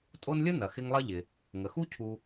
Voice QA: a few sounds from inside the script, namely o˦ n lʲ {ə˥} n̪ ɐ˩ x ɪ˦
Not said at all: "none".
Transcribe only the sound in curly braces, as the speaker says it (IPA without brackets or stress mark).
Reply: ə˥